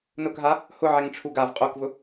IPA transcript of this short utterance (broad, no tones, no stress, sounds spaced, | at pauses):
n ʊ k ɦ a | h ʊ ʕ ɛ ŋ ʈ͡ʂʰ u ɡ a v qʼ o k v ʊ